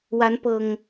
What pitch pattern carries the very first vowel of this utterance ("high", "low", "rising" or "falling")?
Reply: rising